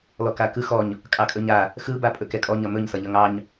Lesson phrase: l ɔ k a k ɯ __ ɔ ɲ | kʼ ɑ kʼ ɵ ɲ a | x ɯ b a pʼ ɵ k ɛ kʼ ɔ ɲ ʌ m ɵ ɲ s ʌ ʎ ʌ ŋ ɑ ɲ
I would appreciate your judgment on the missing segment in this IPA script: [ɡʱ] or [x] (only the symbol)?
x